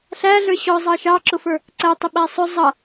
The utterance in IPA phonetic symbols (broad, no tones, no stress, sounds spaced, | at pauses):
ɬ æ ɮ ə˞ ɕ ɔ zˤ ɑ ʃ ɑ ǁ ʊ f ə˞ | ǀ æ tˤ ʊ ɓ æ sˤ ʊ zˤ ʌ